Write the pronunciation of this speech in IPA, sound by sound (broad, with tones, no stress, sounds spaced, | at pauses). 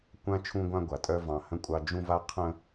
kʷ ã˦ t͡ʃʰ ũ˦ ɡʷ ã˦ ɡʷ a˨ tʼ œ˦ v ɑ̃˨ h ə̃˦ kʷʼ ɑ˦ d͡ʒ ũ˦ v a˦ qʰ ə̃˦